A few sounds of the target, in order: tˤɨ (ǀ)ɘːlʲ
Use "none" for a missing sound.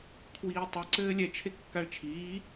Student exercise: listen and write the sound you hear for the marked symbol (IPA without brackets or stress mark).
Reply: ǀ